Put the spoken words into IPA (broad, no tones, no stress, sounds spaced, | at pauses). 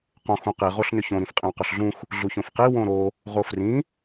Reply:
q õ x ũ q i ʁ o ɬ n ʏ ç õ ɾ ĩ f qʼ ĩ w q u ɬ ɮ ũ x | ɮ u ç õ f q i w õ ɾ o | ʁ o f r ĩ